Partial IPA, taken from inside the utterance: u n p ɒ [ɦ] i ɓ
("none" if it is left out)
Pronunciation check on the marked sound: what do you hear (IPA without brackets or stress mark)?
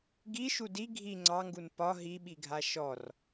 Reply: ɦ